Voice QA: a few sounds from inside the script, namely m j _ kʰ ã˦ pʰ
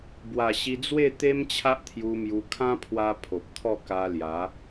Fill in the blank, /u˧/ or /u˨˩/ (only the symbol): u˧